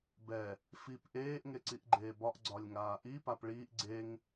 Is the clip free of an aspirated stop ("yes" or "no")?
yes